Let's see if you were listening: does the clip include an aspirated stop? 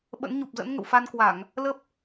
no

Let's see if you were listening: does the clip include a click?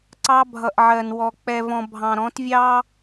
yes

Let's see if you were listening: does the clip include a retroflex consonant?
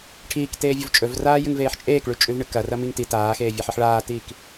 yes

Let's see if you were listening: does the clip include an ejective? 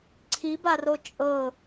yes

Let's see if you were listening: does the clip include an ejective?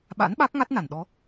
no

